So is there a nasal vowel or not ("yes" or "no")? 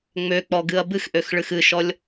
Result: no